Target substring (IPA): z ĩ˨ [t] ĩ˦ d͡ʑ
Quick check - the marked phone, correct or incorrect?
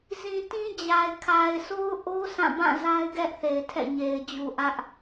correct